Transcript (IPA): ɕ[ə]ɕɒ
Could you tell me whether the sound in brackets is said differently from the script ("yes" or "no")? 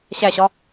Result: yes